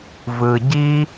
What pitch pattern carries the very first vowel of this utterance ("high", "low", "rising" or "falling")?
low